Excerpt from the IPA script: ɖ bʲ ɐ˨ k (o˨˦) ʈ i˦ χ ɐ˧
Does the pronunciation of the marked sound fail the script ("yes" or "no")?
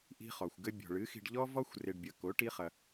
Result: no